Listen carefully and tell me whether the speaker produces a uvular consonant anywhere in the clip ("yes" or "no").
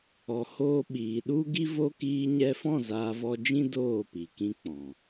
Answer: no